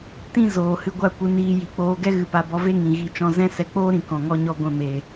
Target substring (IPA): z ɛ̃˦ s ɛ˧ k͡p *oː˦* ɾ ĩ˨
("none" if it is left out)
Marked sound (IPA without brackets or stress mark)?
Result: oː˦